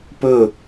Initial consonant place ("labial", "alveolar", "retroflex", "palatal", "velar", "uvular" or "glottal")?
labial